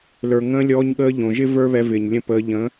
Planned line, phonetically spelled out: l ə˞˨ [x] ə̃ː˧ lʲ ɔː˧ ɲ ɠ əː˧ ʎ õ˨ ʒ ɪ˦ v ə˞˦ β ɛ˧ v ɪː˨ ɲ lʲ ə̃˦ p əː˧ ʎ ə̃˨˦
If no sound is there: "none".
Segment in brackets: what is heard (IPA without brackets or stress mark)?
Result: ŋ